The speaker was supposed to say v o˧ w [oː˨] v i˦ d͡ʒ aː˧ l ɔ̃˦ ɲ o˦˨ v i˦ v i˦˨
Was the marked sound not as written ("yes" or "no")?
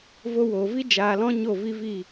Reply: no